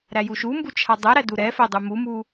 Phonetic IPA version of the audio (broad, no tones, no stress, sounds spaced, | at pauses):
ɾ æ j u ʃ u m b u t͡ʃʰ a dˤ ɛ ɾ æ d u ɾ ɛ f ɛ dˤ u m u m u